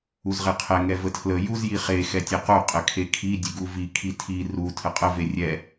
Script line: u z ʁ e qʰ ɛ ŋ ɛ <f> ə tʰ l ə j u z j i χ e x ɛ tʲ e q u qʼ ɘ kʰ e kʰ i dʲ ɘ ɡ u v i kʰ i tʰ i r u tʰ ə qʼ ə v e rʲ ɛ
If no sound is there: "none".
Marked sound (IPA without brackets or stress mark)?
v